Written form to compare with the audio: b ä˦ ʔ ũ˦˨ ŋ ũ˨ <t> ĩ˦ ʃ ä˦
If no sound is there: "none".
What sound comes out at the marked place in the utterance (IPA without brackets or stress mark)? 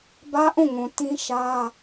t